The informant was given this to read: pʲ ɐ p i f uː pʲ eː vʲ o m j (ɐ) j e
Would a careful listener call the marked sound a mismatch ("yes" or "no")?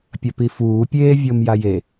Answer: yes